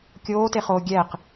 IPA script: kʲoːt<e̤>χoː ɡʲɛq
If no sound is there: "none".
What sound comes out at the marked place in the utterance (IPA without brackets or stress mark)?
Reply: e